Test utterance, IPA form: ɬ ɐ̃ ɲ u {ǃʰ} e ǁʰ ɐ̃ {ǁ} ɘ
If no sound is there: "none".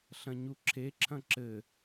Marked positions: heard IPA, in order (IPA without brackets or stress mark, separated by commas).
ǁʰ, ǁ